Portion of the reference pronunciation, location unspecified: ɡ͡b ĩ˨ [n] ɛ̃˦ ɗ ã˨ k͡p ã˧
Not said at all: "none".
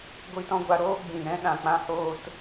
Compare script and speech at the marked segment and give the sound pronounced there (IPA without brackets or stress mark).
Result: ɾ